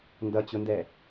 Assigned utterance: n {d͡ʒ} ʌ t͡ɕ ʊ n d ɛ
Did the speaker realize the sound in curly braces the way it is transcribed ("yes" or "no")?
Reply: no